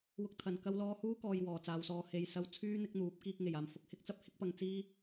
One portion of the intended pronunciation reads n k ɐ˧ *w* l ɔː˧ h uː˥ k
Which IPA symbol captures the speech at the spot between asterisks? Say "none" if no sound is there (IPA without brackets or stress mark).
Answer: w